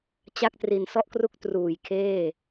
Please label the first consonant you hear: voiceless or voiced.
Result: voiceless